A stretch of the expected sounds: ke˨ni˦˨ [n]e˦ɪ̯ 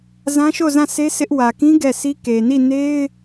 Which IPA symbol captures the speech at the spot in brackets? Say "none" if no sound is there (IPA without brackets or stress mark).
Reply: n